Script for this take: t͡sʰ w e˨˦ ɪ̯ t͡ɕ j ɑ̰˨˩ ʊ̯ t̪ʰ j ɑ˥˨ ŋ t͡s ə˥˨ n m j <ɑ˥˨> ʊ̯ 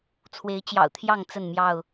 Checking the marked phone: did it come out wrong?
no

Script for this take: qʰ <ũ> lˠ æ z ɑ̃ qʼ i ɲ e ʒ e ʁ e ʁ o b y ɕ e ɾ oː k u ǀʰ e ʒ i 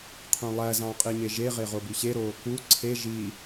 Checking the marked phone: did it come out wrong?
no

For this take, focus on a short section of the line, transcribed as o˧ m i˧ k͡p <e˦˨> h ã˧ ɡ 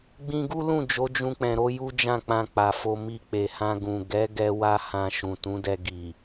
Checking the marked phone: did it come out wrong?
yes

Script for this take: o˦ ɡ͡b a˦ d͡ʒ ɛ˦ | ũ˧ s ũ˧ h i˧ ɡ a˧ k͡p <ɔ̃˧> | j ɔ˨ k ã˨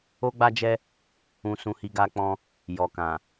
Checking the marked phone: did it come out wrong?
no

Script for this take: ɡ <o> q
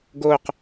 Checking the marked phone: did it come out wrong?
no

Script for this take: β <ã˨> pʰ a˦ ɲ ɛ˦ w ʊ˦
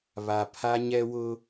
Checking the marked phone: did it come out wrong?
yes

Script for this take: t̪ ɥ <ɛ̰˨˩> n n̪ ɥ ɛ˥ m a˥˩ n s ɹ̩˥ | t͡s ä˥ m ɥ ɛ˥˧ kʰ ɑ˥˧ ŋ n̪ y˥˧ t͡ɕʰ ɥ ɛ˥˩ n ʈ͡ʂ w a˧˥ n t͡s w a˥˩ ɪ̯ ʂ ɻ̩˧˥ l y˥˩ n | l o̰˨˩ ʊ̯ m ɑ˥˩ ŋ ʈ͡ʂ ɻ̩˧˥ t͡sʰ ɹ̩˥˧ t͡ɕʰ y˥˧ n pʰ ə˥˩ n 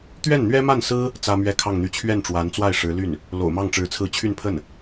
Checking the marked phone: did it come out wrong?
yes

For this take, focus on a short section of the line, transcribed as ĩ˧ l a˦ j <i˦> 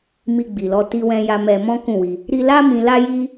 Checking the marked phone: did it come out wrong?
no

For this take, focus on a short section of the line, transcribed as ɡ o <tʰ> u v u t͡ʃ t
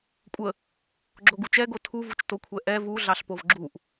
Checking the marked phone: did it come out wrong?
no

